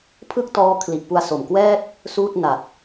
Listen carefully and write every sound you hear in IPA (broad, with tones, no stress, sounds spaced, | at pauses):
pʰ ɯ˥˩ k̚ t ɔː˦˥ kʰ l i˨˩ ʔ p u˧ a̯ s o˨˩ m k w ɛː˥˩ t̚ | s uː˥˩ t̚ n a˨˩ t̚